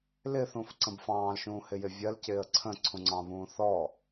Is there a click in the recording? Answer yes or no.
yes